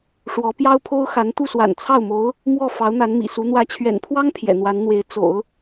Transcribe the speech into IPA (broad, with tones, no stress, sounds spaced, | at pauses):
ʂ w ɔ˧˥ p j ɑ˥ ʊ̯ pʰ o˥ ʊ̯ x a˧˥ n t̪ u˥˩ s w a̰˨˩ n t͡sʰ ɑ˥˩ ʊ̯ m o˧˥ ʊ̯ | m w ɔ˥˩ f ɑ˧˥ ʊ̯ n̪ a˧˥ n m ḭ˨˩ s u˧˥ n̪ w ä˧˥ t͡ɕʰ ɥ ɛ̰˨˩ n pʰ w ɑ˥ ŋ pʰ j ɛ̰˨˩ n̪ w a˧˥ n n̪ w e˧˥ ɪ̯ t͡s o̰˨˩˦ ʊ̯